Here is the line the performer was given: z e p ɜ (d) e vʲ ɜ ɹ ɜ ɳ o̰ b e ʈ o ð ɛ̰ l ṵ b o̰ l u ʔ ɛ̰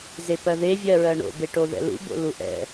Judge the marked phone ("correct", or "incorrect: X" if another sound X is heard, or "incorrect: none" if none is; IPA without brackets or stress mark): incorrect: ð